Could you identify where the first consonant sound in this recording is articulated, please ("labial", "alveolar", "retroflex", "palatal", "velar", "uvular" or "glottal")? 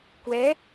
velar